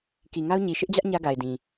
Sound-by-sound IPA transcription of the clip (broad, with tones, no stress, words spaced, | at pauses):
ki˨ŋa˦ʊ̯ ɲi˨ ʃɪ˦ʔd͡ʑä˦ʔ ɲä˦ɡa˨ɪ̯dĩ˨